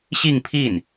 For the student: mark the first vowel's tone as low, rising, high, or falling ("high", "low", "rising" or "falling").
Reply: falling